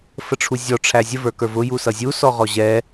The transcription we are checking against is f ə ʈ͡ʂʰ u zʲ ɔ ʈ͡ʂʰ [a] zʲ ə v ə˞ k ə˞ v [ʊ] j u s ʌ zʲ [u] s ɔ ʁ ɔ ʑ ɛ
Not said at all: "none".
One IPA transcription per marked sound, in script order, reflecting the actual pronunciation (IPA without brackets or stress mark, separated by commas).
æ, ʊ, u